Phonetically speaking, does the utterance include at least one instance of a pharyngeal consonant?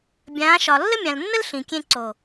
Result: no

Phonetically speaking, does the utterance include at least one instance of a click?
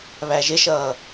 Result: no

